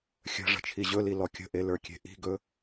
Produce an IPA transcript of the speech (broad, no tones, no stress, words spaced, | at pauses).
xʲə̤ ʐə̤t͡ʃʰiʑɵli lɔkʲə̤ʔe lə˞kʲe̤ʔi̤ɡɵ